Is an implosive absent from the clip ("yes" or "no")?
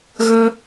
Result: yes